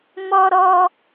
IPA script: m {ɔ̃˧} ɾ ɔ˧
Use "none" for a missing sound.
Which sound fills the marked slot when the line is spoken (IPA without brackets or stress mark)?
ɔ˧